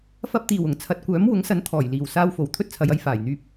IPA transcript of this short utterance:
f ɐ˧ p̚ t̪ iː˨˩ w ʊ˨˩ ŋ t͡sʰ ɐ˨ t̚ kʷ œː˨˥ m w ʊ˨˥ ŋ s ɐ˨˥ n t̪ʰ ɔː˨˩ j l iː˨˩ w s aː˧ w f o˨˩ w t̪ʰ ɵ˥ t̚ t͡sʰ ɐ˨˧ j ɐ˨˧ j f aː˨˩ j n̪ yː˧ p̚

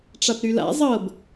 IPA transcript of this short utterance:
ʈ͡ʂ a p ɾ y l a̰ zˤ ɤ b

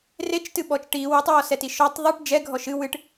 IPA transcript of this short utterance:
r e t͡ʃ t ɨ ɓ ɔ t͡ʃ ʈ i w u tˤ w ɔ s ɛ t i ʃ ɔ tˤ ðˤ ɨ ʈ d͡ʒ ɛ ɡʱ ɔ ʃ ɨ w ɨ ʈ

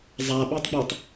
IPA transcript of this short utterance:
zˤ a ɓ e tˤ ɡ͡b u tˤ

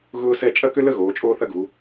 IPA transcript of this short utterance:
ɣ ʊː˥ s ɛ˥˧ t͡ʃʼ ɐ˥˧ k ʏ˥ l ə˥˧ ɣ oː˩˧ t͡ʃʼ oː˥ θ ɐ˥ ɡ u˩˧

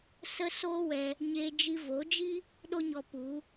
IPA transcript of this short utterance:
s ə˦ s oː˦ w ɛ˧ | ɲ e˧ d͡ʒ i˧ v o˨˦ d͡ʒ i˦ | ɗ o˦ ɲ ɔ˧ p u˨˦

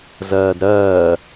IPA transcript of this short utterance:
z ɜː d ɾ ɜː

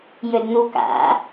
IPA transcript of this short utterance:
j ɵ d n̪ u k a̰

